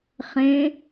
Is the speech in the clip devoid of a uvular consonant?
no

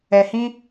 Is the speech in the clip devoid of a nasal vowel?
no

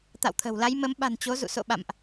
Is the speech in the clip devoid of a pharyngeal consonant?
yes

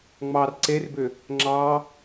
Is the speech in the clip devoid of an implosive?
yes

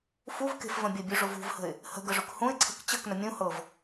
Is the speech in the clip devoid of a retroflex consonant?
no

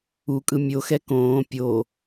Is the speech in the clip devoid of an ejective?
no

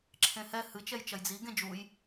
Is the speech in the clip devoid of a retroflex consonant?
yes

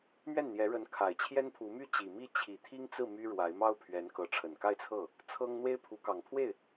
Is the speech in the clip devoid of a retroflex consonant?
no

